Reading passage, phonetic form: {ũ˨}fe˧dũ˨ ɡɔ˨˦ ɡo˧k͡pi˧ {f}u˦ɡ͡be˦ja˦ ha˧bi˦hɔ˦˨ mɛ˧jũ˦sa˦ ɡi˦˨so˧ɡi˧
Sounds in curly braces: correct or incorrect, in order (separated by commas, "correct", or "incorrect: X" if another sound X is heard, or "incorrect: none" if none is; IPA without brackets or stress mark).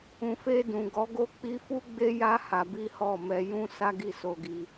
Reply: correct, correct